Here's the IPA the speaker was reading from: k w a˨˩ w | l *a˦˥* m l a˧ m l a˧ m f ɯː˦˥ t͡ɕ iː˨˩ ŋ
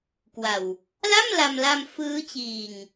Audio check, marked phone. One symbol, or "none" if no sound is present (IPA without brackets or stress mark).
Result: a˥˩